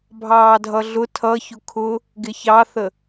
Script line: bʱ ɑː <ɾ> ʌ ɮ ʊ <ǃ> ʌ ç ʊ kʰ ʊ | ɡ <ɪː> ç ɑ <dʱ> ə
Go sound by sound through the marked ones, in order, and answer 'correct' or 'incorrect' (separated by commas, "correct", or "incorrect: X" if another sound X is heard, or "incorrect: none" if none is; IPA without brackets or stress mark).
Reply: incorrect: dʱ, incorrect: tʰ, incorrect: ɪ, incorrect: θ